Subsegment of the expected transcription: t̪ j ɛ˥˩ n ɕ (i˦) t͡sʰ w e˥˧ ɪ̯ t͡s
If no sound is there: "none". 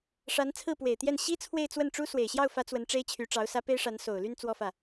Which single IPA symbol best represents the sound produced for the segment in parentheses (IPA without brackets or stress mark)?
i˥